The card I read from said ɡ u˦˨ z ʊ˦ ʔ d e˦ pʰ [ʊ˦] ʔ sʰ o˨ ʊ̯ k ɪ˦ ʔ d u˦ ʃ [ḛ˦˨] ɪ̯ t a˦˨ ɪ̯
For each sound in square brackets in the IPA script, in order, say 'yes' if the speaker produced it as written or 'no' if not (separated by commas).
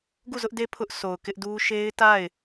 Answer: yes, no